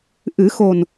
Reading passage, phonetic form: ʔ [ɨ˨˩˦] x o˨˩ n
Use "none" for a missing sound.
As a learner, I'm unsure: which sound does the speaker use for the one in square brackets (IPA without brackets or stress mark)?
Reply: ɨ˨˩˦